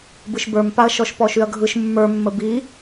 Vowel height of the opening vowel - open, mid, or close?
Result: close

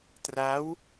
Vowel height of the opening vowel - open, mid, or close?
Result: open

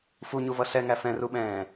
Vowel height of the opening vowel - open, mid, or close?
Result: close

